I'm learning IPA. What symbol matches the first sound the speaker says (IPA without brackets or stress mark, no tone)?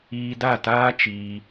iː